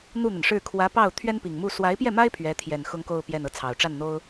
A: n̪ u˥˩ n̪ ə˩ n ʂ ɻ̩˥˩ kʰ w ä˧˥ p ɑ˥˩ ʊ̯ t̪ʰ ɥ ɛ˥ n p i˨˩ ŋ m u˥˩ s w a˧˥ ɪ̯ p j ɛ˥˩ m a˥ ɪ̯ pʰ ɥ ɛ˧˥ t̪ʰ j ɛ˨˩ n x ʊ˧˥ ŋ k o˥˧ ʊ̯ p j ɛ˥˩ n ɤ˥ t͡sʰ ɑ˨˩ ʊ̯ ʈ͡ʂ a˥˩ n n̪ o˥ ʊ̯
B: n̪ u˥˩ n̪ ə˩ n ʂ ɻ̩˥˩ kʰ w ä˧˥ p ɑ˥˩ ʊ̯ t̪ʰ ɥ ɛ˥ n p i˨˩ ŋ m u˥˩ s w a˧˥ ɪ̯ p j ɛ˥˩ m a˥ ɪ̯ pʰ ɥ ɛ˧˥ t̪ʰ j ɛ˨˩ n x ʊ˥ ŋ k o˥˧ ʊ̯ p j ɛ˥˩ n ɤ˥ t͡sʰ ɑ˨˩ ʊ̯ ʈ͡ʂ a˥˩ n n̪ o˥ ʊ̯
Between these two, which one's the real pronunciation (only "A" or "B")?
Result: B